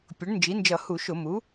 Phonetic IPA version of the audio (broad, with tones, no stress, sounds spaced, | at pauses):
pʲ ʊ˩˥ ɳ n d͡ʒ i˩˥ n d͡ʒ ʌ˧˩˧ h u˧˩˧ ʃ ʊ˧˩˧ m u˩˥